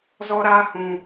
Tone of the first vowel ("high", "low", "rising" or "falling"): high